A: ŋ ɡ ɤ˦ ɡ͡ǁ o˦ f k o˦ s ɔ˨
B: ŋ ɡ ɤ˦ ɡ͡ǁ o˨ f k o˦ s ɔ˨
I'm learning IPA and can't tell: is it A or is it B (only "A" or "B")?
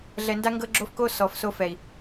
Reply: A